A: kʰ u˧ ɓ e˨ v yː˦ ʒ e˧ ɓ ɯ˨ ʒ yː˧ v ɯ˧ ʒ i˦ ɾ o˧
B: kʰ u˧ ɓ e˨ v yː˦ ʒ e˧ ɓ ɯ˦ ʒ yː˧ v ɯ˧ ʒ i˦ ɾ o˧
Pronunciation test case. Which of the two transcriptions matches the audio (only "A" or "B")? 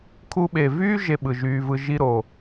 A